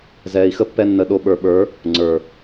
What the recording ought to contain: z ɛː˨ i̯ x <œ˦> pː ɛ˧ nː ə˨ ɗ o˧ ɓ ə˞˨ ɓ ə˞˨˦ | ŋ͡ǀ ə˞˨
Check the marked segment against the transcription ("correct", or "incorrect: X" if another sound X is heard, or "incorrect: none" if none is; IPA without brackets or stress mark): incorrect: ə˦